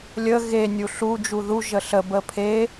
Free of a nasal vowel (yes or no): yes